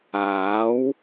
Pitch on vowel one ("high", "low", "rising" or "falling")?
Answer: rising